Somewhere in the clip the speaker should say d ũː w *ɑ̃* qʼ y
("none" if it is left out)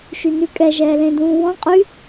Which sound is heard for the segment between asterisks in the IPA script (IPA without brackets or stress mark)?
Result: ɔ̃